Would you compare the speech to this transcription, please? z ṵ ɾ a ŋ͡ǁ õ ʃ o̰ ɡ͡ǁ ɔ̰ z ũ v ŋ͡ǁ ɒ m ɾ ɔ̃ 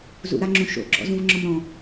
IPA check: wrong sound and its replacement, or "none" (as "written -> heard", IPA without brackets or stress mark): none